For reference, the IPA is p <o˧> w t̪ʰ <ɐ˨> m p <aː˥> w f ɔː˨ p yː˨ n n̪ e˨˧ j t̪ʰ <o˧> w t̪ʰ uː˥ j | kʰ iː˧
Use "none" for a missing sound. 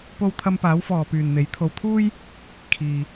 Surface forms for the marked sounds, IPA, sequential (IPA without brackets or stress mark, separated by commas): o˧, ɐ˧, aː˨˧, o˧